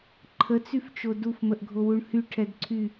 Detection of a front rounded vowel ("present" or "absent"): present